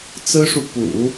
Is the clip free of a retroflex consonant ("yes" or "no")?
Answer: no